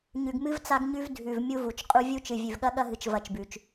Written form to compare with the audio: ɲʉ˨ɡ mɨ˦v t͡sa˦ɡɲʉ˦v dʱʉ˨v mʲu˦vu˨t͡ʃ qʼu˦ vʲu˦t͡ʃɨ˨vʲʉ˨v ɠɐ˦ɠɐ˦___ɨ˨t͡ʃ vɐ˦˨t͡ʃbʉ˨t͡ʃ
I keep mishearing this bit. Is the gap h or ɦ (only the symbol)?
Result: ɦ